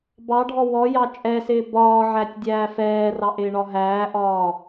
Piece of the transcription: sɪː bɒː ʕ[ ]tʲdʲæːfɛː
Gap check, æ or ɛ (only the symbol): æ